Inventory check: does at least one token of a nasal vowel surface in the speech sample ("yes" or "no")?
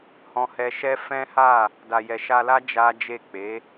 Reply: yes